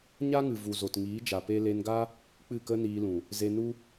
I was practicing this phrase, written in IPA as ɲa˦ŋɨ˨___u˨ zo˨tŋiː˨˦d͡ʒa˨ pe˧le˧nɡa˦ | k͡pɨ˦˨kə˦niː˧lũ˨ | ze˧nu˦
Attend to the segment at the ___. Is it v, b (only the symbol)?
v